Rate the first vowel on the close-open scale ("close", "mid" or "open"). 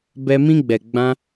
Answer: mid